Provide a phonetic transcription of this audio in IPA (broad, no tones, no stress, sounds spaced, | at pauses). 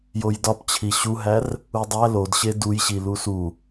j o j d ɒ p t͡ɕʰ i ɕ u ɦ æ r | u dˤ æ l o d ɕ e d u j ɕ i l u s u